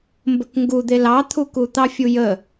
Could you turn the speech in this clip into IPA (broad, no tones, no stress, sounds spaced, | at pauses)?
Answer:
m b ə k ŋ ɡ u d̪ e l ɑ t̪ʰ u k u t̪ ɑ fʲ u j ə